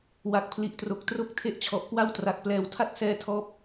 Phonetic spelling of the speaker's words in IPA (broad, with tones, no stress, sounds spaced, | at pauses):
w a˨˩ k̚ pʰ l i˨˩ ʔ t r o˨˩ k̚ t r o˥˩ k̚ tʰ e˥˩ ʔ t͡ɕʰ ɔ˨˩ ʔ k w a˥˩ w t r a˨˩ k̚ p l ɛː˨˩ w tʰ a˥˩ t̚ s ɛː˧ tʰ ɔː˦˥ p̚